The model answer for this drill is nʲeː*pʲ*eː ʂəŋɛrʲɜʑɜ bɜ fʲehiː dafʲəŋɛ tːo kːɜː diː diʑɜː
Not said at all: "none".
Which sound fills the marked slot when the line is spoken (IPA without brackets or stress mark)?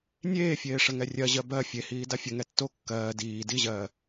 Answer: fʲ